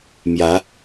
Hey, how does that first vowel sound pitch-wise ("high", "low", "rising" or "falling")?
rising